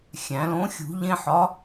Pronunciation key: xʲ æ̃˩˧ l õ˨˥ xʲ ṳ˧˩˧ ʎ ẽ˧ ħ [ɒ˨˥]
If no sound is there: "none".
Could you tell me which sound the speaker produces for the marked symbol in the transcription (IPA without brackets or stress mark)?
ɒ˨˥